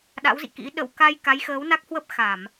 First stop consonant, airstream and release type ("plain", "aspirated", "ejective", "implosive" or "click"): implosive